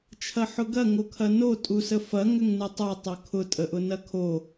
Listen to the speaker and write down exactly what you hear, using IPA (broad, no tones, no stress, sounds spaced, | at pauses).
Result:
t͡ʃʰ ɐ ħ ʊ ɡ ɐ ŋ o kʰ ɐ n o tʼ u s ə f ɐ ŋ ʏ ŋ n ɨ tˤ o tˤ o kʰ ʊ tʼ ə ʔ ʊ n ɐ kʰ o